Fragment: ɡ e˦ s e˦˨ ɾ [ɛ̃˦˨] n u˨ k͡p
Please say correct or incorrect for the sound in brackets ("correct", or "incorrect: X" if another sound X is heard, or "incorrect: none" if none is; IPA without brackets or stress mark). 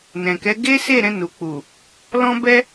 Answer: incorrect: ɛ̃˧